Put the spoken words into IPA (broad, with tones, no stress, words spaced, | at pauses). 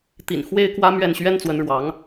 t̪ḭ˨˩n xwe˥ɪ̯kwä˥mɥɛ˥˩n ɕɥɛ˥nt͡swə˧˥nɻwɑ˧˥ŋ